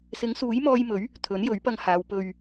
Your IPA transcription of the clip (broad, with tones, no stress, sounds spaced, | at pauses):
s ɪ˨˥ ŋ s uː˨˥ j m ɔː˧ j m ɵ˨˥ ɥ | t̪ʰ ɵ˨˥ n j ɵ˨˥ ɥ p ɐ˧ ŋ h aː˨˧ w p ɵ˧ ɥ